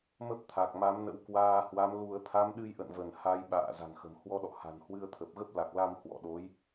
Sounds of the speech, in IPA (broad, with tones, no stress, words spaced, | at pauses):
mə˦˥p̚t̪ʰa˨˩k̚ma˨˦mnə̰˧˥w kwaː˧hwa˨˦mlu˧ə̯ t̪ʰa˨˦mɗɨ˧jʔə̰˧˨nvə˧˩n ha˧jɓa̰ː˧˨ za̤˨˩ŋxə̤˨˩m hwɔ˧ɗɔ̰˧˨ha̤˨˩n hwɨ˧ə̯t̪ʰə˨˩p̚ɣə˦˥p̚ la˨˩k̚la˧m hwɔ̰˧˨ɗo˨˦j